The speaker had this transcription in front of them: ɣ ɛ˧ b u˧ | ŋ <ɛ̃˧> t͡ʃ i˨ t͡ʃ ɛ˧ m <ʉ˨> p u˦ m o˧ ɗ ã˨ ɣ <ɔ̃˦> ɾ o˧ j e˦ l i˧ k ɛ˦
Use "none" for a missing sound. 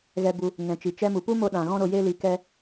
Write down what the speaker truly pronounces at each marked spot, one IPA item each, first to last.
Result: ɛ̃˨, u˨, ɔ̃˦

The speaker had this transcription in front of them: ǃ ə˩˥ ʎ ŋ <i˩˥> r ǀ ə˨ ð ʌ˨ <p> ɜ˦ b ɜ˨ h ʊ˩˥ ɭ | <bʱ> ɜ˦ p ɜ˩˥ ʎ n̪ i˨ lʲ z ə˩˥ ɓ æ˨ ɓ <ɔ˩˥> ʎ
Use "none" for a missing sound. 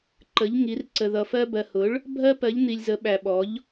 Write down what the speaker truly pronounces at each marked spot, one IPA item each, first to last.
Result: i˩˥, f, bʱ, ɔ˩˥

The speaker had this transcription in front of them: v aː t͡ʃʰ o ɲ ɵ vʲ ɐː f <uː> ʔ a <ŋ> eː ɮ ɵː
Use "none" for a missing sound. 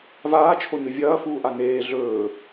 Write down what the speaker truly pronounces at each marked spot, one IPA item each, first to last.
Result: uː, n

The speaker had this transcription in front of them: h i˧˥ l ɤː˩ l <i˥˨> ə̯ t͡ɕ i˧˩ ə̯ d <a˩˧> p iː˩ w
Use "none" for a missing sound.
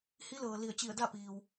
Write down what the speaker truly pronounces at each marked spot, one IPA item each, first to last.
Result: i˧˩, a˥˨

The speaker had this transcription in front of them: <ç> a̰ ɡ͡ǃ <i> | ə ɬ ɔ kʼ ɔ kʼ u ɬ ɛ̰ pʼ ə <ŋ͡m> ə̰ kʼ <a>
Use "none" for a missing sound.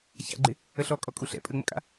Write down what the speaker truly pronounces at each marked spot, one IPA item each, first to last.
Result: ç, ɪ, ŋ͡m, a̰

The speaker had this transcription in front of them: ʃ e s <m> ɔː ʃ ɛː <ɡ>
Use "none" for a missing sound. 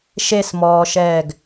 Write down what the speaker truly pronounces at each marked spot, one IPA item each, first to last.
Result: m, ɡ

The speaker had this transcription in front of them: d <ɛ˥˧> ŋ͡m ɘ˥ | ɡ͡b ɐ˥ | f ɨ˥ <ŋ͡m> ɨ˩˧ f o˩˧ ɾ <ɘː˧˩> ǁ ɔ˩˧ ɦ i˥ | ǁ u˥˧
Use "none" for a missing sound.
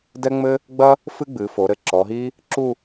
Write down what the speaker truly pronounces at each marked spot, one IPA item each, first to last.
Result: ɛ˥, ɡ͡b, ɘ˧˩

